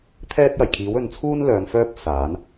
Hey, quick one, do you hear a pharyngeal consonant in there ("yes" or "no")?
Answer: no